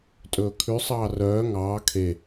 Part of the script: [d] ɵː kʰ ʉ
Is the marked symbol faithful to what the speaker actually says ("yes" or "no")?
no